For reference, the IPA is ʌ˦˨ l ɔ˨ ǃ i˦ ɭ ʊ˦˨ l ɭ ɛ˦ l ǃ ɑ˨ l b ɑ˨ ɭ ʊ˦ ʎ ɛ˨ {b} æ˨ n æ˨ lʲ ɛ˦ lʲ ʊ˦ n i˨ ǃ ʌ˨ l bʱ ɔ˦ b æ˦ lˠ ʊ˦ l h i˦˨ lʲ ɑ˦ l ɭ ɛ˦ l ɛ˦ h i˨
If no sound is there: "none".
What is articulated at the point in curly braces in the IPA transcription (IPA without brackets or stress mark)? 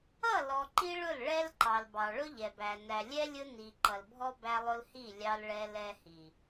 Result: b